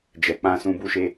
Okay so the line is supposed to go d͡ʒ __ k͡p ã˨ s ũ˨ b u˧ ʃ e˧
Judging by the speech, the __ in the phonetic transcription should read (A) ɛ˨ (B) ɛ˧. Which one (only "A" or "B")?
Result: A